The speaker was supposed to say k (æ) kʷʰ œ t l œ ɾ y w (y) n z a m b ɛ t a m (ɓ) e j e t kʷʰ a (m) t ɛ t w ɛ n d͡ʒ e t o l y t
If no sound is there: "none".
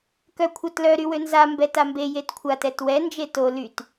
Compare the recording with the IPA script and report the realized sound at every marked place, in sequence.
œ, ø, b, none

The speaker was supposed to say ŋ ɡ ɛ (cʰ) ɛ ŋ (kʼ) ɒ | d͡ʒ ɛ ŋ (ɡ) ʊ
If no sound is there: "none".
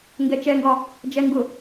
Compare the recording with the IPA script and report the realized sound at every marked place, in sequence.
t͡ʃ, ɡ, ɡ

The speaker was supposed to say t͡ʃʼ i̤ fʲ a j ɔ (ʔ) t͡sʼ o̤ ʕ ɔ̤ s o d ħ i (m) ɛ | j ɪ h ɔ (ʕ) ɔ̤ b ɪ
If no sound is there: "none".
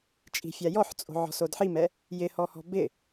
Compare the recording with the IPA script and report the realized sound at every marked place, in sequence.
ħ, m, h

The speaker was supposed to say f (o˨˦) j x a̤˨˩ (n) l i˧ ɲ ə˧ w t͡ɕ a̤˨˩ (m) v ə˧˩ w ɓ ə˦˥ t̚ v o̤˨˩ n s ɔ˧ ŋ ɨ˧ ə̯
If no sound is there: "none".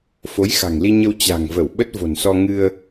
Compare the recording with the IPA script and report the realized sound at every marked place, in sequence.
o˨˦, ŋ, ŋ

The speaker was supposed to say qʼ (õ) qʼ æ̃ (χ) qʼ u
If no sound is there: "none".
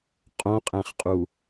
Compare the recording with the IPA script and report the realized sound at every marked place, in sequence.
õ, χ

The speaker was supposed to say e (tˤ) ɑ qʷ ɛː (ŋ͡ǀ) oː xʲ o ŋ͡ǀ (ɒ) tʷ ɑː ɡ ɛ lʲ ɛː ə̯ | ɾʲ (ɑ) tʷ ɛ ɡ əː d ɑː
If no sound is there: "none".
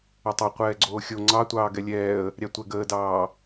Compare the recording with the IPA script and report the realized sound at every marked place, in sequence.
tˤ, ɡ͡ǀ, ɑ, ɑ

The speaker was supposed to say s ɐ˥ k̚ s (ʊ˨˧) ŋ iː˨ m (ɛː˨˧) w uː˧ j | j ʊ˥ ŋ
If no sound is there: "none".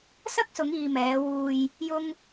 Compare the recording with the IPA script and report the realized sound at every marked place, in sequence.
ʊ˨˧, ɛː˨˧

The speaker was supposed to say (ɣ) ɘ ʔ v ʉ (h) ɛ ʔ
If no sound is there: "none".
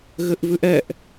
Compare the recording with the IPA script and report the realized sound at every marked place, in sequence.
ɣ, ʔ

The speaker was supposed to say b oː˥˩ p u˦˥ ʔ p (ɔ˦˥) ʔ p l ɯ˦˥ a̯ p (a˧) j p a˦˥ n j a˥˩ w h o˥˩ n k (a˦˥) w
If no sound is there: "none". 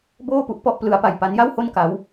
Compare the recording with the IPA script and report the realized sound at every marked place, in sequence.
ɔ˦˥, a˧, a˦˥

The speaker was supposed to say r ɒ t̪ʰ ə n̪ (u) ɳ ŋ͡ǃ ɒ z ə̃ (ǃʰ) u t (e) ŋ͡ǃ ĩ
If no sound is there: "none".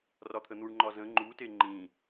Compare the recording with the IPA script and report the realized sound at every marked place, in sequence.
u, ŋ͡ǃ, e

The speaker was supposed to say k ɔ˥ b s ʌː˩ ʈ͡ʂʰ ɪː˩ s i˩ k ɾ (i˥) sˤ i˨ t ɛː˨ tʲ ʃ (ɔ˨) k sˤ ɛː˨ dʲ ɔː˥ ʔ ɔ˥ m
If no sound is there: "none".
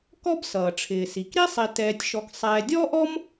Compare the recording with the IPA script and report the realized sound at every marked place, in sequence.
i˥, ɔ˨

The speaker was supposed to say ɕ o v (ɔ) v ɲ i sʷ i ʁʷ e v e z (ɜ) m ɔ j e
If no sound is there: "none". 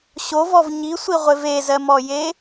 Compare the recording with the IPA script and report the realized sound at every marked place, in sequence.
ɔ, ɜ

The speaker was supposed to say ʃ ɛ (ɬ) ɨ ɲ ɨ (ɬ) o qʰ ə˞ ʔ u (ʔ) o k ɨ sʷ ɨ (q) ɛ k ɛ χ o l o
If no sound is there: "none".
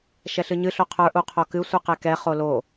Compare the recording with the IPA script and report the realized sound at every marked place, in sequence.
ɬ, ɬ, qʰ, q

